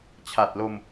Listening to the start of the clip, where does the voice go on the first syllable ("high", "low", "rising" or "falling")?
low